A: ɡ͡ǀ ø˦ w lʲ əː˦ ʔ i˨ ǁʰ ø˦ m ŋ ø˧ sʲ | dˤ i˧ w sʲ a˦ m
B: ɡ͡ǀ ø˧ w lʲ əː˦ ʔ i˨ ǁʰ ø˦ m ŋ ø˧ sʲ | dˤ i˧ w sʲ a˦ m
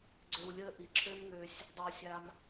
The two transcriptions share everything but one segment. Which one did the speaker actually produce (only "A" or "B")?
B